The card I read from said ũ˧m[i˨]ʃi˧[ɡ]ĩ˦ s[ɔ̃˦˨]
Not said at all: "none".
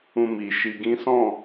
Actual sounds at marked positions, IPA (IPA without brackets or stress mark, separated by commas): i˨, ɡ, ɔ̃˦˨